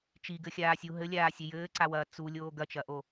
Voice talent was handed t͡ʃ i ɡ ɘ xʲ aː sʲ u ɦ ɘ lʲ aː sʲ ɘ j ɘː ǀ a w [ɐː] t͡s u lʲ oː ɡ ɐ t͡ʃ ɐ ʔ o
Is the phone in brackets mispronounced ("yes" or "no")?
no